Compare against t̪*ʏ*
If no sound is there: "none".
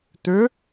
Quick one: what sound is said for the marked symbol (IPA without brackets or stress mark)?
ʏ